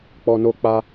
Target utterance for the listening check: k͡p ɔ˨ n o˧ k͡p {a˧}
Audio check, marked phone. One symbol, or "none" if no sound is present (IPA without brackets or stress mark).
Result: a˧